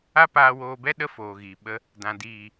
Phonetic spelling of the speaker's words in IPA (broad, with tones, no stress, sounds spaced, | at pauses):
a˦ p aː˧ w oː˧ b ɛ˦ ɗ ə˦ f oː˨ ɣ i˨ ɓ ə˧ | d ã˨ d iː˨